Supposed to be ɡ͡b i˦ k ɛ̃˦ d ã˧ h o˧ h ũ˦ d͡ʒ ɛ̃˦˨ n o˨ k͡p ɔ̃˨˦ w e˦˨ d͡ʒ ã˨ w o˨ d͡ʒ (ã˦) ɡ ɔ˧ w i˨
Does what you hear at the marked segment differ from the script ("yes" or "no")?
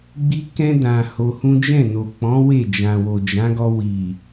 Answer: yes